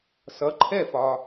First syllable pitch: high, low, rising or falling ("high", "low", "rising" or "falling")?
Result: rising